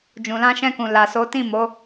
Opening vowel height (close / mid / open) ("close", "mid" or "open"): close